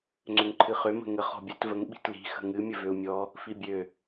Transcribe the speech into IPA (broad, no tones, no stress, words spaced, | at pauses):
ŋ͡ǀøŋǃʰɨχø mə̤ŋə χɔ̤bʲət vəŋ ɓi̤tli̤ xə̤ŋɨ mʲəvøu̯mʲɔ | fibʲø